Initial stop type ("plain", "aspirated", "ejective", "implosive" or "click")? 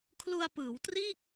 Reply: aspirated